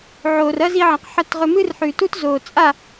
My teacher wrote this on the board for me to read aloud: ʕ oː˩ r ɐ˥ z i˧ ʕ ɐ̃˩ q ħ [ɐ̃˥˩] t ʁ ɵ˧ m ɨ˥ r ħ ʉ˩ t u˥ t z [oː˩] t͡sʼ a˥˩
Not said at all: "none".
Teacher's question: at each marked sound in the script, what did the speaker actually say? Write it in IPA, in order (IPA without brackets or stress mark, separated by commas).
ɐ˥˩, oː˩